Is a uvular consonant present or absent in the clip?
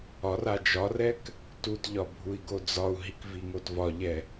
absent